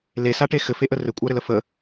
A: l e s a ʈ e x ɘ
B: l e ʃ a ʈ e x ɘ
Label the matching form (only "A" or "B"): A